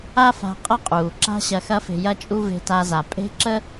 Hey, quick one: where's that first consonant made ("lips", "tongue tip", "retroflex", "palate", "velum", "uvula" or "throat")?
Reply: lips